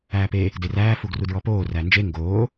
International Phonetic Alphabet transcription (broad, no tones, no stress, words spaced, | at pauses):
æːpe | deræː fuɡrudɹɔpoː rænd͡ʒe ŋɡoː